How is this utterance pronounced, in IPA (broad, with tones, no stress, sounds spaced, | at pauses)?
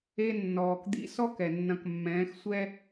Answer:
e˧ nː ɔː˩ k d̪ ḭ˧ s ɔ˥ k ɛ˩ nː ɐ̃˧ k mː ɛ̃ː˧˥ x sʷ ɛ˥